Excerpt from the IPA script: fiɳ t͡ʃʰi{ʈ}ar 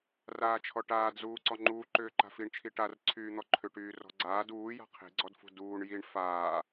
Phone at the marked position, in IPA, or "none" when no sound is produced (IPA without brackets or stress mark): ʈ